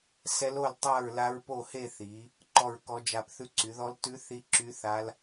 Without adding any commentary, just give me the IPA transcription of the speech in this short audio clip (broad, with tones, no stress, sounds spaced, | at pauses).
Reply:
s ɛ˦˥ l o˥˧ l tˤ a˥˧ ɹ l a˦˥ ɹ p o˥˧ h e˥˧ θ i˨˦ | ǃ ɔ˥˧ ɹ k ɔ˦˥ d͡ʒ a˥˧ p θ ʉ˥˧ ǀ y˨˦ ð ɔ˦˥ l t ʉ˦˥ θ i˦˥ ǁ y˦˥ θ a˦˥ l